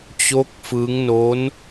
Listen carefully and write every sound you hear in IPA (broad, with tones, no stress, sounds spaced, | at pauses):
t͡ɕ o˦˥ k̚ f ɯ˦˥ ŋ n o˦˥ n